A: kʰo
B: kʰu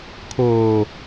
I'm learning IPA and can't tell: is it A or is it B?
A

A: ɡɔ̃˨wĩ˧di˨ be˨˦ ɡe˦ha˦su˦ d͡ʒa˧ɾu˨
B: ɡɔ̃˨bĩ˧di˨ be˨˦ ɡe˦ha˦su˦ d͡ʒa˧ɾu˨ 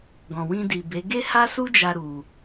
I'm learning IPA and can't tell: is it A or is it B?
A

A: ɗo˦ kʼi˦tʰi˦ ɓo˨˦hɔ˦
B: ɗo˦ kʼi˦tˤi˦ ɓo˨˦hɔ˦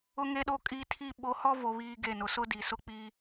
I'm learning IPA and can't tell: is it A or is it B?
A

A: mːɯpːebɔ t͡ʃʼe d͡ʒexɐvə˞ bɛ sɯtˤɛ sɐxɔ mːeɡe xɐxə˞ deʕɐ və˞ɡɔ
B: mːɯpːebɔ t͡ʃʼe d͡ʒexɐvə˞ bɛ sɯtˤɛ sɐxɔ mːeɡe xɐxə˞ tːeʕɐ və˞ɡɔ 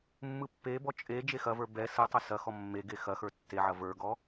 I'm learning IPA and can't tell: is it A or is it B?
B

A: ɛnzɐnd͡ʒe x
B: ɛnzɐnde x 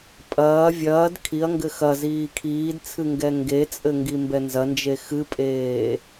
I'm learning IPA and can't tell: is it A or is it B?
A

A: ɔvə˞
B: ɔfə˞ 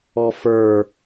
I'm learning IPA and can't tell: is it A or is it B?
B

